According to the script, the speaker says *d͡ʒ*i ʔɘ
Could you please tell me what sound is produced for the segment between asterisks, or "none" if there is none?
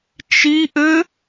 t͡ʃ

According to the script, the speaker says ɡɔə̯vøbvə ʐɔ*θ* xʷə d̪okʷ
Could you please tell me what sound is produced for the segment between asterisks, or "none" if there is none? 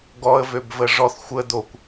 θ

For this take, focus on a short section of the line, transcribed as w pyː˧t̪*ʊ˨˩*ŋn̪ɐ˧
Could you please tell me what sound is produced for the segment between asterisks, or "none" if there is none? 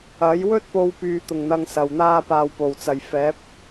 ʊ˨˩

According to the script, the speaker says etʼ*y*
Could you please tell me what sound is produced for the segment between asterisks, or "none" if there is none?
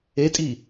i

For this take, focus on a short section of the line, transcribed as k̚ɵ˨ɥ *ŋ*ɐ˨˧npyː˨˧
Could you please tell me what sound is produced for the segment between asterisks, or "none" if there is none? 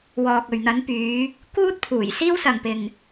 n̪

